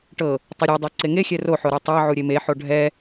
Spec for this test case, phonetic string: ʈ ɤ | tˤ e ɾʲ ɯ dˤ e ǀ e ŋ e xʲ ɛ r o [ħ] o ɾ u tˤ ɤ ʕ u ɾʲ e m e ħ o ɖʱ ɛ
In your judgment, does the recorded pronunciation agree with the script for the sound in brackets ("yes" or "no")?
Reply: yes